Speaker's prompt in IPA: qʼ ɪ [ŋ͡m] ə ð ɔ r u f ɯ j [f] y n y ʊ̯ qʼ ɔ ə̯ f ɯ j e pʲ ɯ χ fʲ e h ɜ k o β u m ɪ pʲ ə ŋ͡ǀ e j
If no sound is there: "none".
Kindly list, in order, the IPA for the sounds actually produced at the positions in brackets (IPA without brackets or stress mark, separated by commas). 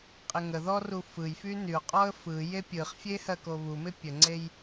ŋ, f